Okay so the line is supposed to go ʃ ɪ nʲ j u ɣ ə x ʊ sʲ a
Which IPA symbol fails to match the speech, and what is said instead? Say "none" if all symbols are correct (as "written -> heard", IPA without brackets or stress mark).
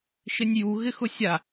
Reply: ə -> ɪ